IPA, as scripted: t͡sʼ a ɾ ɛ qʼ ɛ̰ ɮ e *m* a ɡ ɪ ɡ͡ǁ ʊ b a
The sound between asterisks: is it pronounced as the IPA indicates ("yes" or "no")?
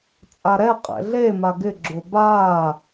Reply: yes